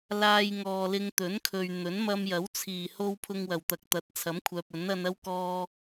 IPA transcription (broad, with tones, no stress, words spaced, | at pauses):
laː˧j ŋɔː˨lɪ˧ŋ t̪ɵ˨˥nkʰɵ˨ɥ n̪ɵ˨˥nmɐ˧mjɐ˨˥w t͡sʰiː˨˩ho˧w pʰʊ˧ŋwɐ˨˩wt̪ɐ˨k̚ t̪ɐ˨˥t̚t͡sʰɐ˨˥mkʷʰœː˨p̚ ɵ˨˥nɐ˧nɐ˥wkɔː˧